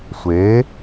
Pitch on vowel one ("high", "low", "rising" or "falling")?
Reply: rising